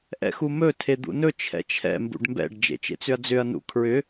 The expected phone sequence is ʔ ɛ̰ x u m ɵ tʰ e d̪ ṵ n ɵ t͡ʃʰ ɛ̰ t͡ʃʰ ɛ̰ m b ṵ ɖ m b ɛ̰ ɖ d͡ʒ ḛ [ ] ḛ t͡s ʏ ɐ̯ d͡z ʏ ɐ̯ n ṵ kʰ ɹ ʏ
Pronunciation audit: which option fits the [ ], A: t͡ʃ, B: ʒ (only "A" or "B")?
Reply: A